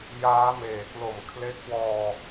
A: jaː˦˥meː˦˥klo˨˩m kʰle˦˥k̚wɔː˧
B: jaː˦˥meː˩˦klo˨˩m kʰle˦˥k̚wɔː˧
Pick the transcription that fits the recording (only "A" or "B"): B